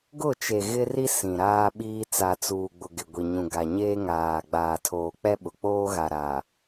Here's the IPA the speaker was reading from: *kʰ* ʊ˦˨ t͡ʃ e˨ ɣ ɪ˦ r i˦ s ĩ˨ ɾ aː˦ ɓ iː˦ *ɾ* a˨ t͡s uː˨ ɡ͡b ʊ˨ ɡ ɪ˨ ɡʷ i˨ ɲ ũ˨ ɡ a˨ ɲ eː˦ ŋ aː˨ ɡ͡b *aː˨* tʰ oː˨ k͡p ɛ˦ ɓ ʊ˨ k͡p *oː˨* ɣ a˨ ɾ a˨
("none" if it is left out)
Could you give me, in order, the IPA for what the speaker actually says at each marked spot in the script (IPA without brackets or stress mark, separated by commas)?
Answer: ɡ, t͡s, aː˨, oː˦